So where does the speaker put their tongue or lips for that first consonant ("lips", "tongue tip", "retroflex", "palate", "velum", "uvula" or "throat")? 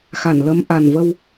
velum